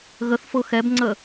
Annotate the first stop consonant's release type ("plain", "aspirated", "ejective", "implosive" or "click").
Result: plain